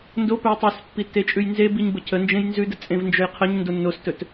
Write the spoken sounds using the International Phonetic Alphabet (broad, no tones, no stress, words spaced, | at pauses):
ndopɵj tˤʉspːi tːet͡ʃʼʉjnzebiɲ bəcʰənd͡ʒẽj nzʉdə t͡sʼẽvnd͡ʒɵjqʰəɲndo nːostɵt